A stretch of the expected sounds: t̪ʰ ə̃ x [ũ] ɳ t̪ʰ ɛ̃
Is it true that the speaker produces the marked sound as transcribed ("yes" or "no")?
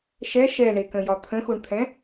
no